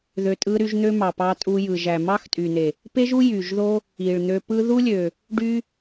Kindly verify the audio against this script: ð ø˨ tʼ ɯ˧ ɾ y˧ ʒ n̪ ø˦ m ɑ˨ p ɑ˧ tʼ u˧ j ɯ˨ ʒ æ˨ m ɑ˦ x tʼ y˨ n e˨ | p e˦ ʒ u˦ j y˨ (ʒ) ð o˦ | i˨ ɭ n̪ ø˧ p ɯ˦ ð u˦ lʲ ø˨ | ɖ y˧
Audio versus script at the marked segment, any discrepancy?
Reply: no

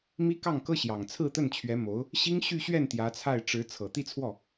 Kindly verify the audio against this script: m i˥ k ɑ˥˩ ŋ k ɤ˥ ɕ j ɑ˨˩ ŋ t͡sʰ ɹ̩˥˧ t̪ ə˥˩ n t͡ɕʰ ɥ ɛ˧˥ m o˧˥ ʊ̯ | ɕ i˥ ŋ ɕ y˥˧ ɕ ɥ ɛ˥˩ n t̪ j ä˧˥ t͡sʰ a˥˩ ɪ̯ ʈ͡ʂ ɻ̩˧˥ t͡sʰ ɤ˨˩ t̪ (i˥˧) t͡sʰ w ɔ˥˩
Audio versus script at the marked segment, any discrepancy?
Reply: no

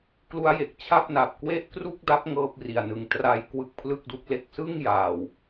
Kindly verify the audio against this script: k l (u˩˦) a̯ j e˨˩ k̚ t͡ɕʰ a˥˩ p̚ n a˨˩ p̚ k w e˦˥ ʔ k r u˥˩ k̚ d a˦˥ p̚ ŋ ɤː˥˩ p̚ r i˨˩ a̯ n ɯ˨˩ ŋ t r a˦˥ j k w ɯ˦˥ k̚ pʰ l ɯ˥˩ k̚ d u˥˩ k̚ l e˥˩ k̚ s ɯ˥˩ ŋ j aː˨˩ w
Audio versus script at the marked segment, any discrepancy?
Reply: yes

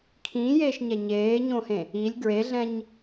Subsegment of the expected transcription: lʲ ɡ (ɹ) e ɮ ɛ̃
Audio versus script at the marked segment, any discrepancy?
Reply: no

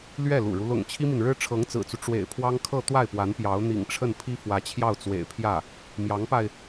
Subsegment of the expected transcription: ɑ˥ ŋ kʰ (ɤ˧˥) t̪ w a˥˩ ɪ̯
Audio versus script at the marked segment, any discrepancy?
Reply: yes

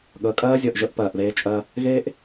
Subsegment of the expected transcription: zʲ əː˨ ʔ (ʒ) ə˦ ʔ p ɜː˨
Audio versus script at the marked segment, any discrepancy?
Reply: no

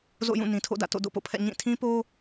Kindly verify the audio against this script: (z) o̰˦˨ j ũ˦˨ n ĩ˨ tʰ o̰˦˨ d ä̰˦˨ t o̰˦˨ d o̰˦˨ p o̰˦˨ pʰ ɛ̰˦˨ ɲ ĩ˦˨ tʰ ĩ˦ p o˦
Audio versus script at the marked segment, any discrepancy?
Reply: no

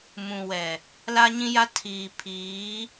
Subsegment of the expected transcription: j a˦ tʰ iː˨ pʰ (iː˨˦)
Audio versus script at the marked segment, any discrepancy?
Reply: no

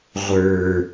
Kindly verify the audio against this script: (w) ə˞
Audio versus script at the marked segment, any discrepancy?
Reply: yes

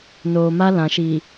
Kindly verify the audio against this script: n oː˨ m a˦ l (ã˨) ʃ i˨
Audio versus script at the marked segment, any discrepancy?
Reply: no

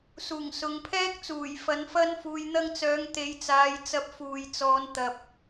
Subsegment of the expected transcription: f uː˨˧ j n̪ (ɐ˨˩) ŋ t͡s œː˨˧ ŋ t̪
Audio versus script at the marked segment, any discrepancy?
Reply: yes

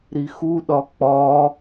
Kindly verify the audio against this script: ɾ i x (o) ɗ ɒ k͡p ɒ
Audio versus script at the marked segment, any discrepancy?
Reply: yes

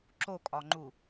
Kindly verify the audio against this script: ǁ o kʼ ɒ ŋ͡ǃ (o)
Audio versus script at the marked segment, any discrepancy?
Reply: yes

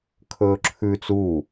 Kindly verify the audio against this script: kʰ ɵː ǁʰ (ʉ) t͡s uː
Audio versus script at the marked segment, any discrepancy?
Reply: no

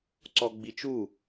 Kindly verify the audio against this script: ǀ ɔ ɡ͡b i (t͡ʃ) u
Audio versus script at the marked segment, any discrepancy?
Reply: no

